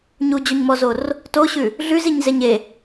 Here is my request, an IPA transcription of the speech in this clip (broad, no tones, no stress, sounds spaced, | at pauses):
ɲ u d͡ʑ o ɲ m ɔ z o r | t o ɕ ʉ | ɮ ʉ z i ɲ z e ɲ e